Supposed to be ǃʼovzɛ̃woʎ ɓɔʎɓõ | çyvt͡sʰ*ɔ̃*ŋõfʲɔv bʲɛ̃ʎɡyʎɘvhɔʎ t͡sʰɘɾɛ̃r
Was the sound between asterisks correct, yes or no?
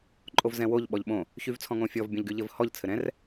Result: yes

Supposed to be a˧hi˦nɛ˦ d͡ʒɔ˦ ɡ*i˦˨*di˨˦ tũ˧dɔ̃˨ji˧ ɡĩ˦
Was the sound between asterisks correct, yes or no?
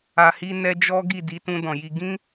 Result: yes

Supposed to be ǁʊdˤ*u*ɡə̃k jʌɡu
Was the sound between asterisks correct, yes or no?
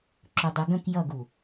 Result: yes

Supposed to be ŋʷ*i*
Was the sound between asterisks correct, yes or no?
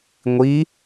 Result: yes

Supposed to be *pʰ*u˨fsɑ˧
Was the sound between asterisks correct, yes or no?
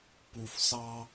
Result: no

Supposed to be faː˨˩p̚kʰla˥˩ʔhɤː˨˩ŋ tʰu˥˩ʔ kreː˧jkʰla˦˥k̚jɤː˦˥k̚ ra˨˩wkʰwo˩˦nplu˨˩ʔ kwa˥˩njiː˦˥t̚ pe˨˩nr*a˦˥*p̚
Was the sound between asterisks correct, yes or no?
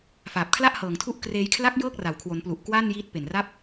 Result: yes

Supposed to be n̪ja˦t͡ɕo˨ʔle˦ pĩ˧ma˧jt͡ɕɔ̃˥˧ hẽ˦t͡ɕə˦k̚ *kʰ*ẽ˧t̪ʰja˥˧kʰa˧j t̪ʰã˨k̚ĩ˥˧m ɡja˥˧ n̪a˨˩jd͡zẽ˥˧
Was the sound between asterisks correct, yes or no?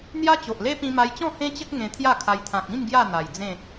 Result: no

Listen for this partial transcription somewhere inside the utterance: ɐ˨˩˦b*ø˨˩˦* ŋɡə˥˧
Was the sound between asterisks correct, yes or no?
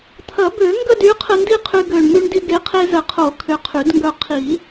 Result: yes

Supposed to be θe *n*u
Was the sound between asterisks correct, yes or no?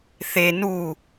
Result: yes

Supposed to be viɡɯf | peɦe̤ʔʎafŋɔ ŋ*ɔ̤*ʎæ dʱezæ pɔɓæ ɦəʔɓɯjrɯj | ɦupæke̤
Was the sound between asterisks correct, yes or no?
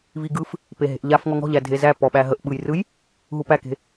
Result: yes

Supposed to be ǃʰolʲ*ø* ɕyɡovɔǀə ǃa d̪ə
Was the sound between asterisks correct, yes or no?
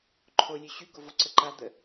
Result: yes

